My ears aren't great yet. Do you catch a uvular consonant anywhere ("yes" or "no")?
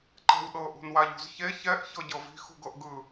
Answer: no